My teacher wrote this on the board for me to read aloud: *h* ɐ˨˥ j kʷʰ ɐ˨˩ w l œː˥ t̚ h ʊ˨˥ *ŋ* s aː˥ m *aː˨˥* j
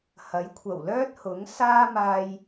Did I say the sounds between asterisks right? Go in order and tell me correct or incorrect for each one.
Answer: correct, correct, incorrect: aː˧

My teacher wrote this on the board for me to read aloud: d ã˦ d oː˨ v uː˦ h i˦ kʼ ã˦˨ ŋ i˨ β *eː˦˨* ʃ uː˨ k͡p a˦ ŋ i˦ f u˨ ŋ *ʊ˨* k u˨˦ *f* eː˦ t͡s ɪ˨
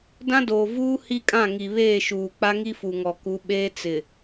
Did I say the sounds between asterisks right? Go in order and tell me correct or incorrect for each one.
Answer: correct, incorrect: ɔ˨, incorrect: ɓ

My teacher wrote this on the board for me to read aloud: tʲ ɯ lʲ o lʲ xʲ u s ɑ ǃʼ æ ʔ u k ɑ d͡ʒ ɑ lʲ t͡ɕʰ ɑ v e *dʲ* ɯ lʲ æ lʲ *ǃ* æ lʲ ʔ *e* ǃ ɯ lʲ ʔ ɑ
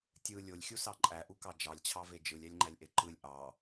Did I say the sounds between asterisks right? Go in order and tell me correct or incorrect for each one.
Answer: incorrect: d͡ʒ, incorrect: ŋ͡ǃ, correct

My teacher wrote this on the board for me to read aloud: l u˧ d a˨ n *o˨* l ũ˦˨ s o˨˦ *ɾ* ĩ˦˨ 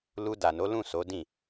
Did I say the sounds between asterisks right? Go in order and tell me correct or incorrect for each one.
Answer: incorrect: o˨˦, incorrect: d

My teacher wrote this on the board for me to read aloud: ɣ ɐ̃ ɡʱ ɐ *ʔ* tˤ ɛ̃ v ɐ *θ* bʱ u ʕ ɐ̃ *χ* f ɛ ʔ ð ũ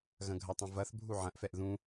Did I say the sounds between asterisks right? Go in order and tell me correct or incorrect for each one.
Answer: incorrect: none, correct, incorrect: ʔ

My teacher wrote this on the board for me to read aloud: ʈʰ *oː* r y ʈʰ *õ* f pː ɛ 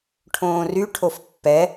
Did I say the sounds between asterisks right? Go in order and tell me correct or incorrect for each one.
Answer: incorrect: õː, incorrect: o

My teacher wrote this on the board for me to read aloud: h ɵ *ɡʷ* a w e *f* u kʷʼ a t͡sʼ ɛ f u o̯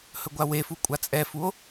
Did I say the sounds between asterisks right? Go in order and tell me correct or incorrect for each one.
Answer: correct, correct

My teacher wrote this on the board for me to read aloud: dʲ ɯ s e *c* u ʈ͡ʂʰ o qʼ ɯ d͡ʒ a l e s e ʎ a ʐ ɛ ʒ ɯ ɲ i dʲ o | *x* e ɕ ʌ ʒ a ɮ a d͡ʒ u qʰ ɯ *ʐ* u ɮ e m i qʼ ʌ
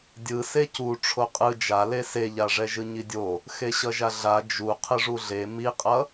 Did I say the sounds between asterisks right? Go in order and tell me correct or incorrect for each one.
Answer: correct, correct, correct

